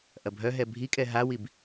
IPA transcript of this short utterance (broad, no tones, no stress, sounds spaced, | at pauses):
ʔ ɐ bʱ œ ɦ ɛ bʱ i kʼ ɛ ɦ a w i b